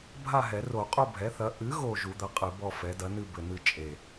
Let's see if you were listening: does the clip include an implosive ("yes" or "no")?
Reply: no